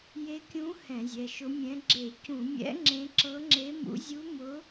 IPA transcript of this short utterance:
j e˧˥ kʲ ũ˧˥ h ɛ̃˧˩˧ zʲ ɛ˩˧˩ ʃ ʊ˧˥ mʲ ɛ̃˧˥ ɡ͡ǁ e˧˩˧ c ũ˧˩˧ mʲ ɛ̰˧˥ ŋ͡ǁ ẽ˧˥ ǁ ɤ˧˥ ŋ͡ǁ e˧˥ m ṵ˧˥ zʲ u˧˥ m ʊ˧˥

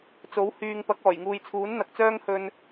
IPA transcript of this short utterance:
t͡s o˨˥ w h yː˧ ŋ p ɐ˨˥ k̚ ɔː˨˩ j ŋ uː˨ j t͡sʰ uː˨˥ n n̪ ɐ˧ k̚ t͡s œː˥ ŋ h ɵ˧ n

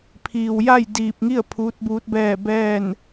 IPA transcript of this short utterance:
pʰ iː˩ w j a˥˨ j d iː˧˩ p̚ ŋ i˥˨ ə̯ pʰ uː˧˥ t̚ b uː˧˥ t̚ b ɛː˥˨ b ɛː˥˨ n

